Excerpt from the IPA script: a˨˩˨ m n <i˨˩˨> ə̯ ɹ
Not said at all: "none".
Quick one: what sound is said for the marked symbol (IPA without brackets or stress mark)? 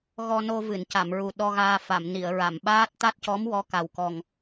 i˨˩˨